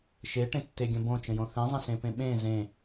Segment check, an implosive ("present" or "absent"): present